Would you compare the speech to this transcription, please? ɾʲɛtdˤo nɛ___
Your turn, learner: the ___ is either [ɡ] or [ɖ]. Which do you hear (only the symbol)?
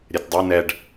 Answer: ɖ